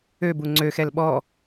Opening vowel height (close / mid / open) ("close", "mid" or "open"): mid